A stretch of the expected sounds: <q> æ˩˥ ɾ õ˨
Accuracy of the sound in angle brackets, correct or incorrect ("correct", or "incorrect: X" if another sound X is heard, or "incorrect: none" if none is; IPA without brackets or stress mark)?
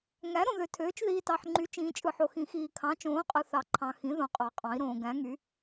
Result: incorrect: ŋ